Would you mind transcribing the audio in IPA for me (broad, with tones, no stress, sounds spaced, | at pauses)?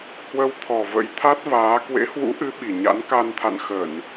h w ə˧ w t̪ʰ ɔ˨˩ v ə̰˧˥ j t̪ʰ a˦˥ t̚ v aː˨˦ k w ḛ˧˥ h w ṵ˧˥ ʔ ɨ˨˦ ɓ i˨˩ ɲ a̰˧˥ n k a˧ n t̪ʰ a̰˧˨ n x ə˧˩˨ n